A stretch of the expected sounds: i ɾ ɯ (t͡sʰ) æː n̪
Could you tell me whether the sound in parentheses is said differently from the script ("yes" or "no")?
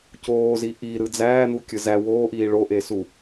yes